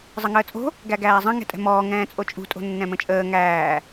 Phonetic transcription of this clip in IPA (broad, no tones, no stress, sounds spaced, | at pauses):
zˤ ə ŋ əː t͡sʼ o̤ | ɡ æ ɡ æː zˤ ə̃ ŋ ɛ̤ tʼ ɛ̤ m ɔː ŋ ɛ̃ː t͡sʼ o t͡ʃʼ ṳ tʼ o̤ nː ɛ̃ m ə̃ t͡ʃʼ əː ŋ æː